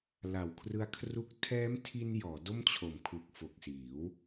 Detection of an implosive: absent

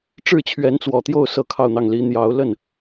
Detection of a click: absent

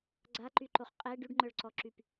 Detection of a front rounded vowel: present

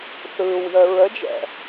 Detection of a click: absent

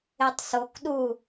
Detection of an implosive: present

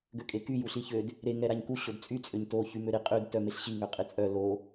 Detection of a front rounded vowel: present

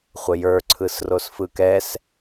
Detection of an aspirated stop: present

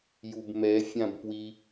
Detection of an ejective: absent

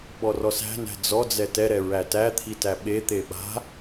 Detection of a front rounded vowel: absent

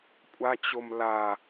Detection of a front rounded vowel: absent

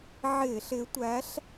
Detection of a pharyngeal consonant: present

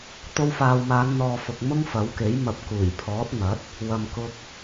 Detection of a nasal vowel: absent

